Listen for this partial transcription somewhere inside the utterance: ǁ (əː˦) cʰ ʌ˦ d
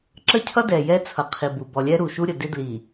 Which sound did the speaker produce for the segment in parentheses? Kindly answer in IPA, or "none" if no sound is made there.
ə˦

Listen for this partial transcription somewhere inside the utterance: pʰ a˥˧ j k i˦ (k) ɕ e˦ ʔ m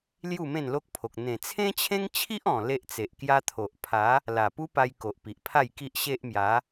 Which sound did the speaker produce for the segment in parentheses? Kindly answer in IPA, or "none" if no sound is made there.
ʔ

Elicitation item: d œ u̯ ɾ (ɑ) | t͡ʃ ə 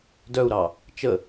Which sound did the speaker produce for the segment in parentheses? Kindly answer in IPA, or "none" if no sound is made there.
ɑ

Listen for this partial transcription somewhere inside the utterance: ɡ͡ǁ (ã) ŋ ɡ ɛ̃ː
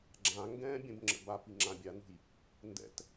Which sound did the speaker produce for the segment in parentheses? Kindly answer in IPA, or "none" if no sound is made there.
ã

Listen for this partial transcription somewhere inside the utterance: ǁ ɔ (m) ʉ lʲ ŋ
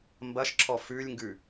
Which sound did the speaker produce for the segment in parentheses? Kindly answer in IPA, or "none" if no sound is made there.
f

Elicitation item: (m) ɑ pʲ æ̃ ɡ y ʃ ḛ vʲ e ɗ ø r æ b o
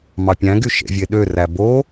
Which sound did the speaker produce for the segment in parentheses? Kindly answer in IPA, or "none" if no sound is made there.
m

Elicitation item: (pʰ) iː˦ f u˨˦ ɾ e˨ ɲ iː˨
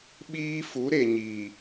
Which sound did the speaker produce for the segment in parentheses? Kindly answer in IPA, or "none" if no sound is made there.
ɓ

